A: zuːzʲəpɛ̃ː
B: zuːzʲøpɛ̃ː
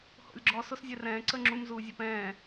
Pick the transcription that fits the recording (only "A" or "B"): B